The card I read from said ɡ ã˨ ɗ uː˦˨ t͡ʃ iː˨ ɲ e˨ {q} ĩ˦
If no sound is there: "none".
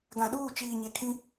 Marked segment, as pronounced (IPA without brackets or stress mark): kʰ